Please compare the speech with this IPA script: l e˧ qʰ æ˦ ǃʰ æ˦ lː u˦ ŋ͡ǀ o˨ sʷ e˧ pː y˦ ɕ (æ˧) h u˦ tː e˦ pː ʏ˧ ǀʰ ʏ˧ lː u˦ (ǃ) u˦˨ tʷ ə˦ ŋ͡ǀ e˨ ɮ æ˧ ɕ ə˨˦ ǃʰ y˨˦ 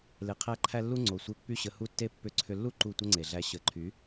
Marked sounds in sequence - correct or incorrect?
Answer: incorrect: ə˧, correct

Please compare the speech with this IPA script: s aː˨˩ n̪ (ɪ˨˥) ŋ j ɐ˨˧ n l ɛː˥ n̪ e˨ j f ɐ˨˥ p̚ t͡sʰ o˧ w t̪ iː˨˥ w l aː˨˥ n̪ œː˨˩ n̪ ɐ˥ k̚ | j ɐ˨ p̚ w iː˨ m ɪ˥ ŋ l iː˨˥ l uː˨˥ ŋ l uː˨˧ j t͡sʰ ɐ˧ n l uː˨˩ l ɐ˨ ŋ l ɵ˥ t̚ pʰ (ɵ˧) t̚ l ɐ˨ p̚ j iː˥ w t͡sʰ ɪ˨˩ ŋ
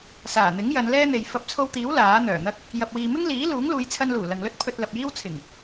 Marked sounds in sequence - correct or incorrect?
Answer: correct, correct

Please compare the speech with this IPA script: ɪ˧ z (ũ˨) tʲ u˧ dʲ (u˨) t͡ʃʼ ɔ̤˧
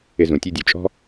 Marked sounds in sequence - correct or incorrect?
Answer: correct, correct

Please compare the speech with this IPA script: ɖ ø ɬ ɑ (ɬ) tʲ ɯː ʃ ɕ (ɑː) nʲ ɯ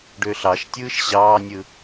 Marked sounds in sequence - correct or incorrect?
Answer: incorrect: ʃ, correct

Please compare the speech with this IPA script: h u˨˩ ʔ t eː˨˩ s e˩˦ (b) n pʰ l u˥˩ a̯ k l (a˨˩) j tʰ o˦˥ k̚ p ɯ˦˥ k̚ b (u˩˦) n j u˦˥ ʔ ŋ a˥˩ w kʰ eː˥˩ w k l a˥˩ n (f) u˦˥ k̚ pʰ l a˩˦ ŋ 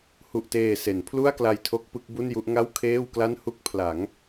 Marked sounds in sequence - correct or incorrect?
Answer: incorrect: none, incorrect: a˧, incorrect: u˥˩, incorrect: h

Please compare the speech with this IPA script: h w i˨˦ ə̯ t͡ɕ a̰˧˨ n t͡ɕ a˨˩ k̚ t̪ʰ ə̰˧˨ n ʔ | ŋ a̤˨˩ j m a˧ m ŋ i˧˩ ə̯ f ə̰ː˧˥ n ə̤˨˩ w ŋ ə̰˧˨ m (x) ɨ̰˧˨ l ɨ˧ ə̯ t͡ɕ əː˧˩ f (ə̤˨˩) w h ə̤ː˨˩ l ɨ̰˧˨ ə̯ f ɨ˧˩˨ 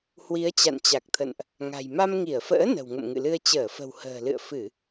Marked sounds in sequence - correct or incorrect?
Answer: incorrect: ŋ, correct

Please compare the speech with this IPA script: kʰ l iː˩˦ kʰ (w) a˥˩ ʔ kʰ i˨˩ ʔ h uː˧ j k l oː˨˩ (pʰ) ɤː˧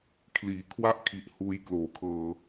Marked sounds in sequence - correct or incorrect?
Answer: correct, incorrect: kʰ

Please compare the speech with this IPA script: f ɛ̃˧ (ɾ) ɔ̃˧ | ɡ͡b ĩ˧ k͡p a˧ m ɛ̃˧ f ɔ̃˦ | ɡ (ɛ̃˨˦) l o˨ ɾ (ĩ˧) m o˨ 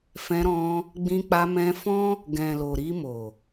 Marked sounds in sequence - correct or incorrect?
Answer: correct, incorrect: ɛ̃˨, incorrect: i˧

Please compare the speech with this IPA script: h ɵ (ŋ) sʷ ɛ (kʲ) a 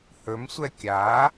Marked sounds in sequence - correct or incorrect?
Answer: incorrect: m, correct

